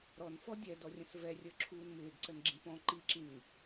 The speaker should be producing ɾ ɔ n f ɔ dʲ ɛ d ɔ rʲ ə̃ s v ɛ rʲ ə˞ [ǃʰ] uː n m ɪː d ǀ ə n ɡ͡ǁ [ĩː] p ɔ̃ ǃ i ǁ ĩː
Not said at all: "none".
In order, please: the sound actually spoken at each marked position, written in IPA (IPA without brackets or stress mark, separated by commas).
ǁʰ, ĩ